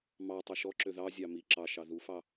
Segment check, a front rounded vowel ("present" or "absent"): present